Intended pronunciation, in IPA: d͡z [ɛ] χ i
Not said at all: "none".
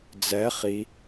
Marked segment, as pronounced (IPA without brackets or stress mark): ɛ